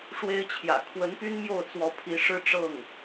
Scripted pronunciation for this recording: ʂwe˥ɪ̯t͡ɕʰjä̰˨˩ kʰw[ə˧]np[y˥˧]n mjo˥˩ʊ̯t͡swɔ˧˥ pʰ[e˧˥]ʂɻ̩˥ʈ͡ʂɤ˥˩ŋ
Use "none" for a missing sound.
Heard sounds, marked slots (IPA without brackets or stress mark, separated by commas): ə˧˥, y˥, i˧˥